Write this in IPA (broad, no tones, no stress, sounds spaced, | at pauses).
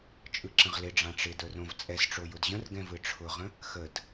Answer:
t͡ʃʼ ɯ ǁ ə̃ ʁ l ɪ ɖ͡ʐ ã ʈ͡ʂ ɪ d ə˞ r õ v t͡sʼ ɛ s ʈ͡ʂ o j ʊ d ʑ ə̃ r ɡ ɛ̃ v ɯ ʈ͡ʂʰ ʊ ʁ ə̃ | x ə d